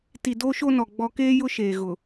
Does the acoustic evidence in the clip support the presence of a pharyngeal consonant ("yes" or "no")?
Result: no